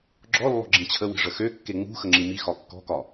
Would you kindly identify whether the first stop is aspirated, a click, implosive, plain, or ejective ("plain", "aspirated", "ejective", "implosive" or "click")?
click